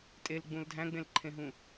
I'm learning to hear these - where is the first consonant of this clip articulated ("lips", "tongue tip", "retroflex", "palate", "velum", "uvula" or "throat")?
tongue tip